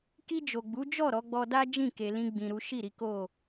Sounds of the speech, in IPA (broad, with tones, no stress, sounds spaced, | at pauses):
k i˧ d͡ʒ o˨ ɡ͡b u˨˦ d͡ʒ ɔ˦˨ ɾ ɔ˨˦ ɡ͡b ɔ˧ d a˦ d͡ʒ ĩ˦˨ k e˧ l ĩ˦ ɡ͡b ĩ˧ ɾ u˦ ʃ i˦˨ ɾ i˨˦ k o˦˨